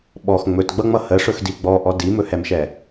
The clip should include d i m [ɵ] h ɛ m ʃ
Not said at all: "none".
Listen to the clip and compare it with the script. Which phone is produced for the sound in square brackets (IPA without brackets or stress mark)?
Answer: ɵ